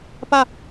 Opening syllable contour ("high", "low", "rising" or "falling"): falling